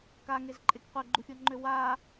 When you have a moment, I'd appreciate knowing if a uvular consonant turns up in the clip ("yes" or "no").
yes